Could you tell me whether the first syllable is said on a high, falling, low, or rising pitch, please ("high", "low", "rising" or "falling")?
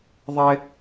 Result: high